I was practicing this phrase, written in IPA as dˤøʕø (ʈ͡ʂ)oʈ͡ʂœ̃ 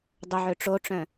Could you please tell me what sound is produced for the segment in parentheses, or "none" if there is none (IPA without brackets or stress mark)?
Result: ʈ͡ʂ